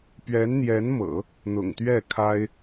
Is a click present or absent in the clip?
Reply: absent